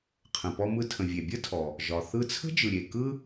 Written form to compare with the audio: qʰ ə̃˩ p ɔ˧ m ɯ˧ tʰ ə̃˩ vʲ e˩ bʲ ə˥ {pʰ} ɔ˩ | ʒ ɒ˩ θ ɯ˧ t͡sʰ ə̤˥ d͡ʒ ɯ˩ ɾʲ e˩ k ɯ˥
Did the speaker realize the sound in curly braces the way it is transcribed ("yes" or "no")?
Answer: no